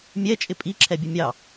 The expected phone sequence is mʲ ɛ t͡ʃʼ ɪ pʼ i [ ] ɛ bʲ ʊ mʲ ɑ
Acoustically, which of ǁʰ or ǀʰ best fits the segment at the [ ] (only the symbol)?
ǁʰ